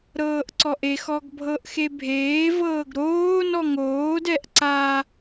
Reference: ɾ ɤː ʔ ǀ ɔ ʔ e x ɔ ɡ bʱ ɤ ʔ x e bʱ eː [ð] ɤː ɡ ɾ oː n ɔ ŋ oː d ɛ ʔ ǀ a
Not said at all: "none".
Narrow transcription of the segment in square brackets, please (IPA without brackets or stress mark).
v